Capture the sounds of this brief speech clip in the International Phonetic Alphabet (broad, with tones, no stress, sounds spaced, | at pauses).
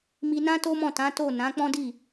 m i˧ n ã˦ t o˦ m ɔ̃˦˨ t ã˨˦ t o˦˨ n ã˨˦ k͡p ɔ̃˦ d i˦˨